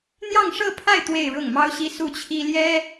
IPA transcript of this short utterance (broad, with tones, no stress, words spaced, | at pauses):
n̪jɑ˥˧ŋʂɤ˥˧pʰa˥˧ɪ̯ t̪we˥˧ɪ̯ɻʊ˥˩ŋmɑ˥ʊ̯ɕi˥ su˥˩t͡ɕʰi˥ ljɛ˥